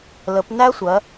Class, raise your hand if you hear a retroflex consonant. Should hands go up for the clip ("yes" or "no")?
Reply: no